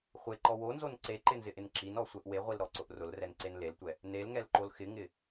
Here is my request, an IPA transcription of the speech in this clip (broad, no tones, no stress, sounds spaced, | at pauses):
χʷ e ǃ ɔ w o n z o n ǀ e ǃ ɪ n z ɪ ʔ ɪ n ǁ i n ɔ sʷ ɛ ʔ w e ʁʷ i l ɾ ɔ ǀ ʊ ʔ r ʊ l r ɛ n ǀ e n l e l tʷ ɛ | n e l ŋ ɛ l ǃ o l x ɪ ŋ ɪ